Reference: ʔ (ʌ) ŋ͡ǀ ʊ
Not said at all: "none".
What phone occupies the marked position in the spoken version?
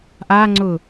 a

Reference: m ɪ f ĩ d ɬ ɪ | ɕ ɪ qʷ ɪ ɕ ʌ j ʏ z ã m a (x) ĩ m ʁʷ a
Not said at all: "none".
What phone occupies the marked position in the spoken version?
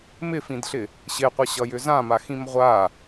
x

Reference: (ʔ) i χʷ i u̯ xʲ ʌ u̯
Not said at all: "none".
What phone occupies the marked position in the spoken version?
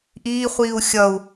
ʔ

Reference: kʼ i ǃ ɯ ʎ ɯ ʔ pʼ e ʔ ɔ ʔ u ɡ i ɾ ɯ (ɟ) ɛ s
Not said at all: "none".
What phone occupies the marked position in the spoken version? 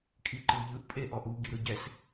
ɟ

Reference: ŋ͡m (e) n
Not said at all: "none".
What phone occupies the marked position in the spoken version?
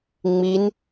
i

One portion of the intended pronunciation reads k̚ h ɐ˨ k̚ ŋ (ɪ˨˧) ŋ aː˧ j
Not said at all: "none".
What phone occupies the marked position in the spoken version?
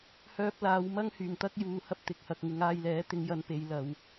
ɪ˨˧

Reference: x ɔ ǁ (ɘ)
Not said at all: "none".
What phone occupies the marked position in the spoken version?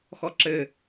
ɘ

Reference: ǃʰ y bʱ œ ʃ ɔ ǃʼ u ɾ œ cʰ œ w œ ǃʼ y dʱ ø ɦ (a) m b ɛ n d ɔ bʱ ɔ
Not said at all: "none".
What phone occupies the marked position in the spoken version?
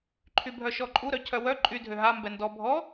a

